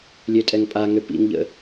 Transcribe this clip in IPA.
lʲ ø tʼ ɛ ŋ pʼ a ŋ ø p ḭ ŋ ʎ ə̰

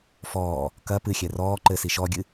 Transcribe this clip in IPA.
f ɔː | k ɐ p ɨ xʲ ɛ r ɔː ǃ ɘ s i ʃ ɔ ɡʲ ɨ

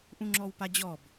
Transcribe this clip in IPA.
ʔ ũ ŋ͡ǁ ɔ w p a d͡ʑ ɔ b

